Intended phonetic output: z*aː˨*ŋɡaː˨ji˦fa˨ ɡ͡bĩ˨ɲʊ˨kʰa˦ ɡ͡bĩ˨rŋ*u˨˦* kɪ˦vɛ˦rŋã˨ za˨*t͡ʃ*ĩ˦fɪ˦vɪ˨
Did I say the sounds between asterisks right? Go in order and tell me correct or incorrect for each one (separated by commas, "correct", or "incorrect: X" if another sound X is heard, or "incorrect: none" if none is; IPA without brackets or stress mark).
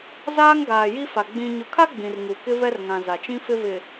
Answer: incorrect: aː˦, incorrect: u˨, correct